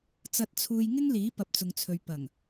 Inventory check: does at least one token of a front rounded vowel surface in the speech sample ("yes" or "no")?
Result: no